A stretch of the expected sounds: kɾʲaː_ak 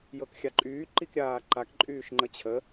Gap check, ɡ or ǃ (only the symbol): ǃ